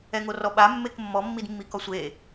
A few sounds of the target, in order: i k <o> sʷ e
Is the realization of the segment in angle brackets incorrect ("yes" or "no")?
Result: yes